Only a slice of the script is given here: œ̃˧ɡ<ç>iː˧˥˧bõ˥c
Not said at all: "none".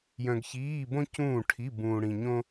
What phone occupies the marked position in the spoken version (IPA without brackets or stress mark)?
ç